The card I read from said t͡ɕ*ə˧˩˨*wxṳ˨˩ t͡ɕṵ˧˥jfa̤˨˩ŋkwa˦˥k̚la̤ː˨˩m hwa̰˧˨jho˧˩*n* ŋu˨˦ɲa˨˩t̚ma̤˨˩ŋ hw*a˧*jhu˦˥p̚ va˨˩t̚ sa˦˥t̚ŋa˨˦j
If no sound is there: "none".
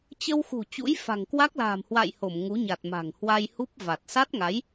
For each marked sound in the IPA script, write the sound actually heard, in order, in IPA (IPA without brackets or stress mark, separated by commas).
ə˧, m, a˧